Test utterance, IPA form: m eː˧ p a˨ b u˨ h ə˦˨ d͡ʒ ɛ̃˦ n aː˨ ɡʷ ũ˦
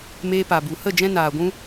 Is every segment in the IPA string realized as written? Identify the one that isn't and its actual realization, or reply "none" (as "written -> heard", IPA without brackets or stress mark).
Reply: none